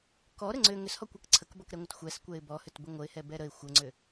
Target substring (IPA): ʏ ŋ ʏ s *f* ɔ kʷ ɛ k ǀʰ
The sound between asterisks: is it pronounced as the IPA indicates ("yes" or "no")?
no